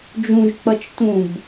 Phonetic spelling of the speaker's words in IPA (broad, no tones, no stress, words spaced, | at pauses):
d͡ʒũʒk͡pʌt͡ʃ tũb